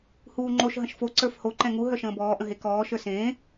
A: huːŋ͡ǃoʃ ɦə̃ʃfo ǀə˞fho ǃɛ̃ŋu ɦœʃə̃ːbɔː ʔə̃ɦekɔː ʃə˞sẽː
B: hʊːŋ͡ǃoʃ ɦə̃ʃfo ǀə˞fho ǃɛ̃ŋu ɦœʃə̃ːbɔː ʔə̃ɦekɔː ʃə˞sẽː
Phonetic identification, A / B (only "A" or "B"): A